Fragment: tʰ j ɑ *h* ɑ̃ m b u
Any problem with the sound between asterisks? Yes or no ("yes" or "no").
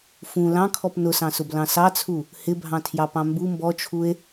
yes